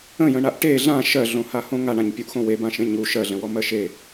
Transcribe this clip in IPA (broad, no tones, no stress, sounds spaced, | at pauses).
ə̃ j ə̃ ɳ a ʔ ʈ e ɮ ã ʃ ɜ ɮ õ h a h õ ŋ a ɳ ã ɲ pʲ u ʔ x õ w e b ã ʃ ẽ ɲ u ʃ ɜ ɮ ə̃ w ɔ m ɜ ʃ e